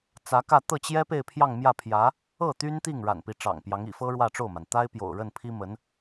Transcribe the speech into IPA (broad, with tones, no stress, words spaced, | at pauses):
t͡sä˧˥kä˥˧ t̪ɤ˥˩t͡ɕjɛ˥ pe˥˧ɪ̯pʰjɑ˥˧ŋmjä˥˩pʰjä˧˥ | ɤ˥˩ t̪y˥nt̪i˥˩ŋ ɻa̰˨˩npi˧˥ʈ͡ʂɑ̰˨˩ŋpjɑ˧˥ŋ ḭ˨˩fɤ˥ ɻwä˥˧ʈ͡ʂo˥˩ʊ̯ma˩n t̪a˥ɪ̯pjo̰˨˩ʊ̯ɻə˥˩npʰi˥ mə˧˥n